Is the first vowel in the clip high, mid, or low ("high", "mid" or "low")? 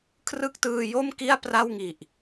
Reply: high